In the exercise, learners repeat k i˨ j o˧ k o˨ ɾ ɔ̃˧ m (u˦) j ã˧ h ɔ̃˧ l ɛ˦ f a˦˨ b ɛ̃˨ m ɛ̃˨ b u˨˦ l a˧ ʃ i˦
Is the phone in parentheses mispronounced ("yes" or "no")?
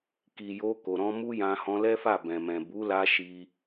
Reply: no